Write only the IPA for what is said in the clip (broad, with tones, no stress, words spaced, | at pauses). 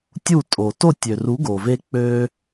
tʲu˥˩tʼo˩ to˥˩tʲø˩ru˩˥ ɡo˩ve˧ k͡pø˧